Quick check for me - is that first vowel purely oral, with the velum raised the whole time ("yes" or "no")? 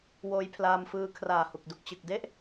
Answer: yes